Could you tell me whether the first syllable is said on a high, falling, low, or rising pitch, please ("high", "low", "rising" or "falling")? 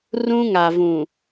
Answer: high